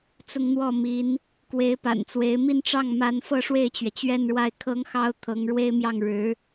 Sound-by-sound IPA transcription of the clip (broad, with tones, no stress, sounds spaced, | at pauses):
t͡s ʊ˥˧ ŋ n̪ w ɔ˥˩ m i˧˥ n | k w e˧˥ ɪ̯ p a̰˨˩ n t͡s w e˧˥ ɪ̯ m i˥˧ n ʈ͡ʂ ɑ˥˩ ŋ m a˧˥ n f ɤ˥˧ ʂ w e˥˩ ɪ̯ t͡ɕ ɥ ɛ˩ t͡ɕ ɥ ɛ˥˧ n ɻ w a˥˩ ɪ̯ kʰ ɤ˥ ŋ x ɑ˥ ʊ̯ t̪ʰ ɤ˧˥ ŋ ɻ w e˥ ɪ̯ m j ɑ˥˩ ŋ ɻ ɻ̩˧˥